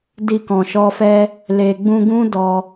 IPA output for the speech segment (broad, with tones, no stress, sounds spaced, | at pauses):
d i˧ k ɔ̃˨ ʃ ɔ˧ f ɛ˦ | l e˨ ɡ͡b ũ˧ ɡ ũ˦ d ɔ˧